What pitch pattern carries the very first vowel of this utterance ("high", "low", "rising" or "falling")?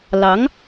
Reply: rising